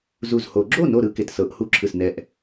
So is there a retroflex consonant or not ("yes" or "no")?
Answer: no